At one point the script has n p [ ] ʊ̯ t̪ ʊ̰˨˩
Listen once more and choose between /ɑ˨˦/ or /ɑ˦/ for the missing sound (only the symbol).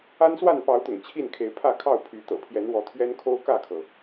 ɑ˨˦